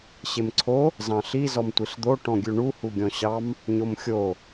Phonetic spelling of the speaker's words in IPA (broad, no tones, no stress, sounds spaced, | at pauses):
ɕ e m ǀʰ o | z ɑ̃ ɬ i z ɔ m tʷ i ɬ d̪ o ʈ ɔ̃ ɡʲ ʉ ɳ u h u ɡʲ ɔ̃ ɕ ɑ m | ɲ o m xʲ o